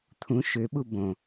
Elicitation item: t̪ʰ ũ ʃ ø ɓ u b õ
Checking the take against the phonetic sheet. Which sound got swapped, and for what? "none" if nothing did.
none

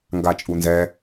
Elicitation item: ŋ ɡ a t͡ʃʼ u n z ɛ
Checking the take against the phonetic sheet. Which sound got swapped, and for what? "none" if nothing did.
none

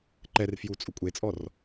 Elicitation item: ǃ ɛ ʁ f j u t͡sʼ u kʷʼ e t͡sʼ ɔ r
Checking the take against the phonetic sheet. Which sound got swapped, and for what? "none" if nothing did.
ʁ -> r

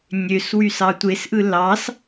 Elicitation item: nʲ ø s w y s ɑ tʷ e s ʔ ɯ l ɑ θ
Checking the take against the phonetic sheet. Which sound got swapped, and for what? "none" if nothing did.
θ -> s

